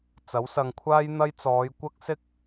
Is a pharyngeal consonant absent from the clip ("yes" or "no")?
yes